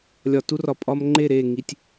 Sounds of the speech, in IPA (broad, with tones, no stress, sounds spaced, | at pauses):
lʲ ɒ˨ t u˦ r ɒ˨ pʼ ɒ˦ m ŋ͡ǃ e˦˨ ɾ e˦˨ ŋ i˨ tʲ